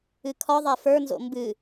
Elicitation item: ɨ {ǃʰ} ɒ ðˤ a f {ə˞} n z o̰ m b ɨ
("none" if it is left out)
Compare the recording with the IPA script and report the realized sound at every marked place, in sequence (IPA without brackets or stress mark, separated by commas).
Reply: kʰ, ə˞